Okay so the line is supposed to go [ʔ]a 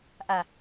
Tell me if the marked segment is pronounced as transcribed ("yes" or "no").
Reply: yes